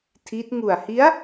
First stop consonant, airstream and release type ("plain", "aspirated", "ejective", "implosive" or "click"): aspirated